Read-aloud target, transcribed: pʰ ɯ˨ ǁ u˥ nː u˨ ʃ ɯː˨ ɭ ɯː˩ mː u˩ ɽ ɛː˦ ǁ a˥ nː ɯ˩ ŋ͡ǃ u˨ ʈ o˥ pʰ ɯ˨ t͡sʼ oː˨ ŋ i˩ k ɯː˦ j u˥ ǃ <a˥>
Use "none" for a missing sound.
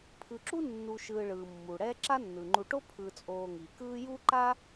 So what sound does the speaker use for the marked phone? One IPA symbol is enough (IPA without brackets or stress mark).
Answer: a˥